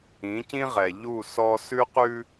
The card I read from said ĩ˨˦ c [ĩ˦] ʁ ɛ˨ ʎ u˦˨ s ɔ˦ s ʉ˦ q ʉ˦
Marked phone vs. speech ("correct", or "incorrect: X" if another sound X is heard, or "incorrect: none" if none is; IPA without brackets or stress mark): correct